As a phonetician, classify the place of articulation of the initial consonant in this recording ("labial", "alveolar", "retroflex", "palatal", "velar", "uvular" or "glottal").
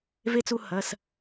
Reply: labial